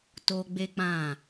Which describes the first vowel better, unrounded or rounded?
rounded